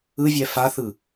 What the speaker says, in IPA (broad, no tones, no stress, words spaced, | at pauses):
ɯvʲɛ faθɯ